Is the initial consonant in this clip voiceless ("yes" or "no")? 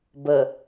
no